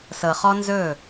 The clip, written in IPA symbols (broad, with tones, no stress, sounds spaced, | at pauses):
s ɤ˨ χ ɔ˦ n z ɵː˦˨